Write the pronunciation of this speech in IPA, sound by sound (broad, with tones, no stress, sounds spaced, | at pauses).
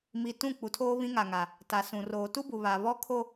m i˨ t ũ˦˨ k͡p u˨ tʰ oː˦ β ĩ˦ ŋ a˨ ŋ a˨ | t a˨ s ũ˨ r oː˨ t u˦ b u˨ β a˨ β ɔ˦ kʰ o˦